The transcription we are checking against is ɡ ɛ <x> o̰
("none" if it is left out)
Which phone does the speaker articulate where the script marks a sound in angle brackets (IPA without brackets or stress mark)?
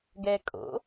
kʼ